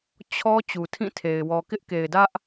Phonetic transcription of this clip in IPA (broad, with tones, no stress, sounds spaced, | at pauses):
t͡ɕʰ ɔ˦ t͡ɕ u˨ tʰ ĩ˦˨ tʰ e˨ ɪ̯ w ɔ˨ k ɪ˦ ʔ k e˨ ɪ̯ d ä˦ ʔ